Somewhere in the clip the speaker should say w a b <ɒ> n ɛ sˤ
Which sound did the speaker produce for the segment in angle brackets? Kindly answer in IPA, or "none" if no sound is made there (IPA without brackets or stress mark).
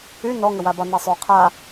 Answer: ɒ